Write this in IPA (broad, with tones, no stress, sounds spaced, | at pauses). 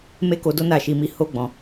m e˦ k o˧ d o˦ n a˦˨ ʃ i˧ m i˦ h o˦ ɡ͡b ɔ̃˧